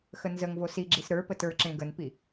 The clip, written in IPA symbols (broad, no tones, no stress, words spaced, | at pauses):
xənzəŋvo siɡ͡ǁis ɾə˞ pətə˞ǁẽ ɡənpi